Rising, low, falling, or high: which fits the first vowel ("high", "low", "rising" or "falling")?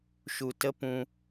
low